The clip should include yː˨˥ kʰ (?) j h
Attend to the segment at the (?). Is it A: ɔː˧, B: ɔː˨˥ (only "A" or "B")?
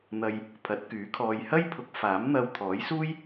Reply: A